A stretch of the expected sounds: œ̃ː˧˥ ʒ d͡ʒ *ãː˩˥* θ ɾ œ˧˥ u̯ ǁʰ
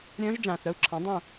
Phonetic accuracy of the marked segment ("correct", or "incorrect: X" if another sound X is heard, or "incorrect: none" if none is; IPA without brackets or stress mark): incorrect: ãː˨